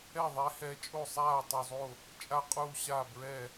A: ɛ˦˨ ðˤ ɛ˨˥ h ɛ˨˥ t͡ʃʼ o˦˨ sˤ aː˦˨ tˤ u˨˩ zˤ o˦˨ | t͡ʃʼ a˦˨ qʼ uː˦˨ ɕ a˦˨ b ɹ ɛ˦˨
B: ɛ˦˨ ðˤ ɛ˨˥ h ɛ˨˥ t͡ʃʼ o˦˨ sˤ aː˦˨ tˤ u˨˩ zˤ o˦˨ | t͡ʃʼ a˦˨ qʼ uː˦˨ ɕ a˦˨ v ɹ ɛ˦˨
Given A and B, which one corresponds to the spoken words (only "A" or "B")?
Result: A